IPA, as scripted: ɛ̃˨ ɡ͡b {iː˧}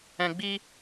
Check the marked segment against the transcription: incorrect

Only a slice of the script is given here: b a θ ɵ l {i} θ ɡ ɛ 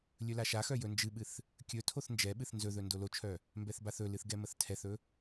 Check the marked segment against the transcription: incorrect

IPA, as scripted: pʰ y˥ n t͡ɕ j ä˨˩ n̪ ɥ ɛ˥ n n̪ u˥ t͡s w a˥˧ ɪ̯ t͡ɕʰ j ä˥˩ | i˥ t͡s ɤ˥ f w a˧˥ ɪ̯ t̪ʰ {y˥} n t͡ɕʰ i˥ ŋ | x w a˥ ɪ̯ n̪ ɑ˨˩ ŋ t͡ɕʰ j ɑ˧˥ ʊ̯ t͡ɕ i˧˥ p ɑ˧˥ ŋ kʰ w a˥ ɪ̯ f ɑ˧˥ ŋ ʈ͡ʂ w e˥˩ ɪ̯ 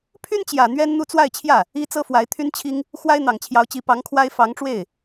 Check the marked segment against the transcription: correct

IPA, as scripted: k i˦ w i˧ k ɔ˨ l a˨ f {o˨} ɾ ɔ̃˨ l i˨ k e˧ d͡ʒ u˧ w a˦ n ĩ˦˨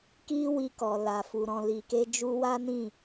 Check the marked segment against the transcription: incorrect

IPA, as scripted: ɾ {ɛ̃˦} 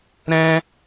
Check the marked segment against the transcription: correct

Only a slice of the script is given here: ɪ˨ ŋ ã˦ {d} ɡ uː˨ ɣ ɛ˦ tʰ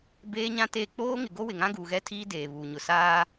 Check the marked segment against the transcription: incorrect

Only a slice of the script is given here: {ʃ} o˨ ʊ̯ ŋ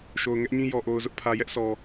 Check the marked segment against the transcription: correct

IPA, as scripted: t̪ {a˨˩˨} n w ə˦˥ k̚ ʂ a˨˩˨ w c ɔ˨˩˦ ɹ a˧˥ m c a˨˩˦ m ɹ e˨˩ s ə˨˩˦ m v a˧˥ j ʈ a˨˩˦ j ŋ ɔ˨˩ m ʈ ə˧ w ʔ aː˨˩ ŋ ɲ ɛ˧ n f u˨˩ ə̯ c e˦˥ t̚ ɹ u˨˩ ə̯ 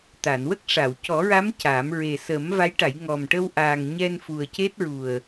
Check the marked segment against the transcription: correct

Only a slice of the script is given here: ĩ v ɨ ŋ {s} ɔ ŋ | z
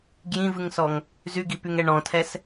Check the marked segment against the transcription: correct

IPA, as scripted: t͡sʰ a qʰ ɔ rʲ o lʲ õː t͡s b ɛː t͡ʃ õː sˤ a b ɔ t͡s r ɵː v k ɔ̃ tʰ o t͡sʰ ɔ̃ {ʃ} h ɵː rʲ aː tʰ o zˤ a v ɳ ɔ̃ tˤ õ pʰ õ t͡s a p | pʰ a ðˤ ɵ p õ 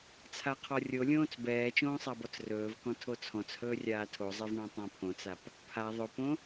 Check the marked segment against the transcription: incorrect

